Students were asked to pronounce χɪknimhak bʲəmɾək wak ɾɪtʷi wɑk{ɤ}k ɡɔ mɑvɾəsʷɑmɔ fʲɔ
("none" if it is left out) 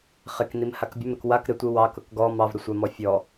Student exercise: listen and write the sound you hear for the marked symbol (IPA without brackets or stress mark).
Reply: ɤ